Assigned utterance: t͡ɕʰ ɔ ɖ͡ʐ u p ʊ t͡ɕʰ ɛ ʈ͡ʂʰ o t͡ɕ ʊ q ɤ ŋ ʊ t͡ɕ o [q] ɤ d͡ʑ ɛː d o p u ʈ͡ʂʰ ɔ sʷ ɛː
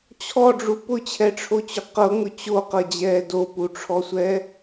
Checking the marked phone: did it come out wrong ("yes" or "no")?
no